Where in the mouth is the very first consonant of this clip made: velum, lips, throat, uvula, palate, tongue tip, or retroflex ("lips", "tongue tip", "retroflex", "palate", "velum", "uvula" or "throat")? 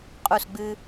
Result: uvula